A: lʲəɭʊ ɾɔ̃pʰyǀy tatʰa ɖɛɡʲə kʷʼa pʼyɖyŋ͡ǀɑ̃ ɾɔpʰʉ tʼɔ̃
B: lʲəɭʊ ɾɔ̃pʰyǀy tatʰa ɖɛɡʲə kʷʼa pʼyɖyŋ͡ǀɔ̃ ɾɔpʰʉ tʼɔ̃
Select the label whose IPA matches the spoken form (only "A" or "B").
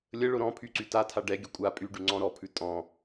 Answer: B